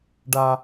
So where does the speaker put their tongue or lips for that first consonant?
retroflex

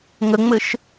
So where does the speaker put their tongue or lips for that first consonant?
velum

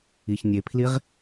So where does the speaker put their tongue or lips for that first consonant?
palate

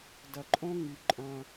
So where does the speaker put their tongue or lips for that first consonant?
tongue tip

